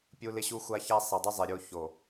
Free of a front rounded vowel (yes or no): yes